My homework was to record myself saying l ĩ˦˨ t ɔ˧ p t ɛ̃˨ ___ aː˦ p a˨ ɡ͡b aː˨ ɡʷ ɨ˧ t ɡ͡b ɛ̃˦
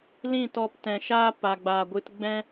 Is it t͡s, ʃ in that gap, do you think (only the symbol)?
ʃ